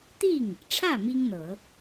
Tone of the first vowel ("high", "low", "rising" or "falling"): falling